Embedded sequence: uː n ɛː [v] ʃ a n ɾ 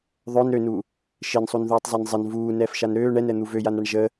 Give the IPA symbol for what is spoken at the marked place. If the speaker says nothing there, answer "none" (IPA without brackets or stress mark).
f